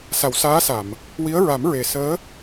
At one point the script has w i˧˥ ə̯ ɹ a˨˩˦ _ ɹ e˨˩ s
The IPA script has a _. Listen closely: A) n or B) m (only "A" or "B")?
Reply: B